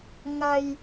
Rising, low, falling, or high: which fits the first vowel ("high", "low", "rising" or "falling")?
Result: low